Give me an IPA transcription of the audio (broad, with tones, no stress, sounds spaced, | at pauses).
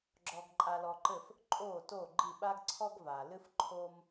ɡ͡ǁ ɔ˧ ɡ ǃʼ a˧ l ɔ˧ ǃ ɘ˥˩ f | ǃʼ o˥˩ t o˥˩ ɡ͡ǃ i˥˩ ɓ a˥ ɡ ǀʰ ɔ˥ ɡ v a˩ l ɨ˥ f ǃʰ o˥ m